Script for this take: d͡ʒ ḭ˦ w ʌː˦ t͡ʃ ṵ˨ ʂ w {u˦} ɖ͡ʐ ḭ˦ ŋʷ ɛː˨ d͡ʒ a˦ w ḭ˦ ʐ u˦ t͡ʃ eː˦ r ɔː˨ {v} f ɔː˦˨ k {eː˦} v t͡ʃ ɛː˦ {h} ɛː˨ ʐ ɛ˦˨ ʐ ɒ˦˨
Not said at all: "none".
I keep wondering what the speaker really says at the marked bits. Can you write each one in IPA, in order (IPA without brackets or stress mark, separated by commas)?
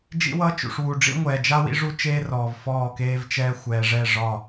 u˨, v, eː˦, xʷ